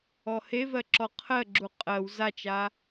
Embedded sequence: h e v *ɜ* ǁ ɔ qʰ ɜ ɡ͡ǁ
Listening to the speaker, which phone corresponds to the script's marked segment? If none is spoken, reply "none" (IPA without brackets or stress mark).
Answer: ɜ